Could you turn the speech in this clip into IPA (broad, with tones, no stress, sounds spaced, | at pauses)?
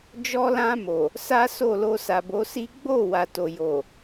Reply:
d͡ʒ ɔ˧ l ã˧ m o˨ | s a˦ s o˦˨ l o˧ s a˨ b o˨˦ s i˦ ɡ͡b o˦˨ w a˨ t o˨ j o˨